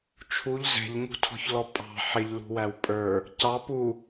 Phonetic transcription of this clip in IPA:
t͡ʃʰuʎ zɛ̤ʎŋṳtʰɔ̤çlɔ pʼɑ̤ ħɪʎlṳwæw pʼə˞ | cɑ pu

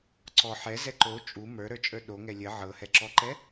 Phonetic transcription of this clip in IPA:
ǀɔ ħɛzɛ ǃo t͡ʃʼu mə˞ɾə˞t͡ʃʼə˞ ɗoŋɛ lʲə ʕɤhɛǁɔǃɛ

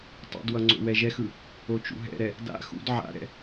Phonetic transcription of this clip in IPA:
tˤṵdwʌ ŋ͡ǀo̰wɛʒɛxɯ | ot͡ʃṵɦɛ̰ɾɛ | da̰ xṵd ʕa̰ɾɛ̰

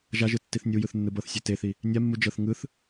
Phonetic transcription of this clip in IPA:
ʒaʒɯ tːiθnʲujɯθ nːɯbɤθsʲe teθi | nʲamːu d͡ʒɤθ ŋɯθ

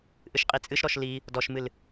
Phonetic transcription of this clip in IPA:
ʔɨʃqʼit͡sʼɨʃɾɔʃ li | dɔʃmɨl

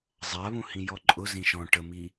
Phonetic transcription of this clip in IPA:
zˤaβũ hĩjɔǃʼʊzĩ ʃɔ̃ ʈəmi

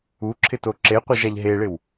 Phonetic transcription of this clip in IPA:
uǁʰɪto ǁeqʷeʒaʎ ɦeɭɪw

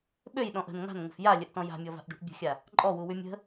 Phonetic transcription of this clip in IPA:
ɓøjɗɔ̃ʔ ə̤n ŋa̤nŋə̤f jalʲəʔtɔ̃ ja̤mʲɔva̤ʔɖṳʔ bʲə̤xʲa | ǃʼɔwuwy mʲə̤

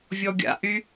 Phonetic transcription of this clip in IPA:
vʲɔɡʲa̰ʔy

